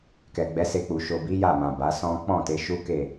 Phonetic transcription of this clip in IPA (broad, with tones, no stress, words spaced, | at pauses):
kɛ˨ɡ͡bɛ˨˦ se˧k͡pu˨ ʃo˨bi˨˦ ja˦˨mã˨ ba˨˦sɔ̃˦ k͡pɔ̃˦˨ te˨˦ ʃu˦ke˦˨